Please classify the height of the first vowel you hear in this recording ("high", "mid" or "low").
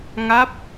low